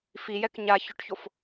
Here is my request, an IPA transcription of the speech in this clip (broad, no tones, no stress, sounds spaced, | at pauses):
f i j ɛ k ɲ a ç ʊ ʈ ç o f